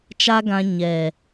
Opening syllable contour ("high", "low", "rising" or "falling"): high